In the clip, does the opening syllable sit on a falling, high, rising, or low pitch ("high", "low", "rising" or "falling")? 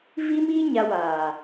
high